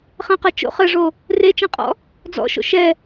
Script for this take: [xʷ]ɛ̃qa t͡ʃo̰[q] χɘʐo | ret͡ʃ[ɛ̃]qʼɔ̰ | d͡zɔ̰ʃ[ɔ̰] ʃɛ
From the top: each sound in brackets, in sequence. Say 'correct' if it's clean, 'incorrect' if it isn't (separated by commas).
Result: incorrect, incorrect, correct, incorrect